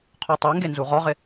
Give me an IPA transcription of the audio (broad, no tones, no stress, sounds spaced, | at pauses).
qʰ o tˤ o ŋ ɡ e n z u ʁ ɔ ʁ ɪ